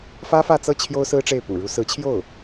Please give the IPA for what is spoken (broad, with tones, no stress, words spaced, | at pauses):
fä˥fä˥˧t͡sɤ˥˩ t͡ɕʰjo˥ʊ̯sɹ̩˥ʈ͡ʂe˥˩ɪ̯ pṵ˨˩ɻu˧˥ sɹ̩˧˥t͡ɕʰjo˥˩ʊ̯